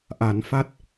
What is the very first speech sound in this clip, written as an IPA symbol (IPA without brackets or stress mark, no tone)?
ʔ